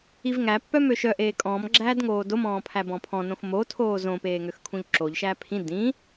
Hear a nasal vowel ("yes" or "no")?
yes